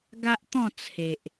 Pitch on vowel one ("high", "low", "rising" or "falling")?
high